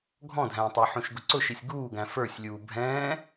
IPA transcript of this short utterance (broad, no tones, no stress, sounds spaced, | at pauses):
ɡʱ ɔ̃ dʱ æ̃ː tˤ ɛ ħ ũ ʃ ɡ ʊ ǀ ʊ ʃ i sʲ ɡ uː ɡ æ̃ f ə˞ sʲ lʲ uː bʱ ɛ̃ː